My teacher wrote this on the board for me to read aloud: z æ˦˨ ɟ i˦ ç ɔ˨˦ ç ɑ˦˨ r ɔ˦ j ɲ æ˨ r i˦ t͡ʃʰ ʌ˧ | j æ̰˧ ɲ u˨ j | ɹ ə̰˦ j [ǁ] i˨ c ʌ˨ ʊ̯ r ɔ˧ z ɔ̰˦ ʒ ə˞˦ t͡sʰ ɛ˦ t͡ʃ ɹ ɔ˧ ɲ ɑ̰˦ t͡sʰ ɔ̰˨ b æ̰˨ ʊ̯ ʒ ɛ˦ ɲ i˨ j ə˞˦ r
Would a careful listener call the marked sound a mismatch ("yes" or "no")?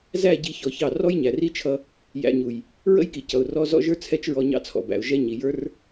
yes